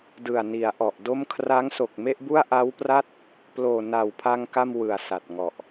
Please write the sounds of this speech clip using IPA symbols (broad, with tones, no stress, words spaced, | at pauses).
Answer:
dɯ˨˩a̯ni˩˦a̯ʔɔ˨˩ʔdo˥˩m kʰra˦˥ŋ so˨˩k̚me˥˩ʔbu˥˩a̯ ʔa˦˥wpra˥˩t̚ | ploː˨˩na˨˩wpʰa˧ŋ ka˥˩mwɯ˨˩a̯sa˨˩t̚ŋɔ˨˩ʔ